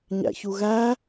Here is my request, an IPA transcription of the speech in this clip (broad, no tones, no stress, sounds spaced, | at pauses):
ɲ æ̰ ç u ɣ æ